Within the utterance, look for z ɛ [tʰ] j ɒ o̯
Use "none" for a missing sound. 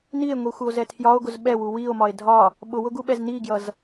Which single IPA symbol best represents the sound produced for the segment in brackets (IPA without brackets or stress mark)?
tʰ